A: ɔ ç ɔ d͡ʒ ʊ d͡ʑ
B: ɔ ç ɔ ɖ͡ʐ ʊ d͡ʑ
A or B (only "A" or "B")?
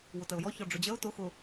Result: B